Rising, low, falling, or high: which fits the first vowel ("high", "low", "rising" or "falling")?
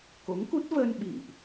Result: rising